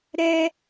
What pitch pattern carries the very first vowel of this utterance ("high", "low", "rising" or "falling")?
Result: high